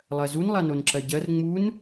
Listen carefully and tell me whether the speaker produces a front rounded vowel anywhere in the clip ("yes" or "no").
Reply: no